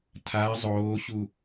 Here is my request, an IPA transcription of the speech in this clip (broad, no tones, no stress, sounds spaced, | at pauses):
tʰ a zˤ oː ɕ u